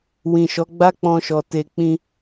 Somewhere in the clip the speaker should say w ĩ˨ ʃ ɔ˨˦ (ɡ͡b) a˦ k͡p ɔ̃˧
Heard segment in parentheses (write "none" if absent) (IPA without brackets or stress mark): ɡ͡b